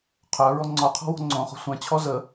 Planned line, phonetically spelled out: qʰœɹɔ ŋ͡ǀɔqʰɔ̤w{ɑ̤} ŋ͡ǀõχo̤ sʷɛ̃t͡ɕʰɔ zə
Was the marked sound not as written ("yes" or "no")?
yes